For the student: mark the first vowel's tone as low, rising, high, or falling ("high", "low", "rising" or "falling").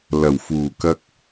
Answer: low